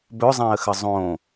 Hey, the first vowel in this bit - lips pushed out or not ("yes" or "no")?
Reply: yes